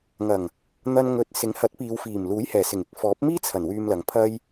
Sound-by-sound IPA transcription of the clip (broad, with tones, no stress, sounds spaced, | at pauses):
ŋ ɐ˨˩ ŋ | n̪ ɐ˧ n ŋ ɵ˨˥ t̚ s ɪ˨˥ ŋ h ɐ˨˥ t̚ p iː˨˧ w f iː˨˩ m l uː˨˥ j h ɛː˨˩ s ɪ˨˩ ŋ ɪ˨˥ k̚ f ɔː˨˥ p̚ m iː˥ t͡sʰ ɐ˨˩ n w yː˧ m l ɐ˨ ŋ pʰ ɐ˥ j